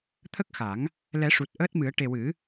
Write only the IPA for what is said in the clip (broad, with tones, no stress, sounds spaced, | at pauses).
t̪ʰ ə˦˥ k̚ x a˨˩˦ ŋ | l ɛ˨˩˦ ʂ u˨˩ t̚ ʔ əː˦˥ t̚ m ɨ˨˩˦ ə̯ ʈ e˨˩ w ɨ˨˩˦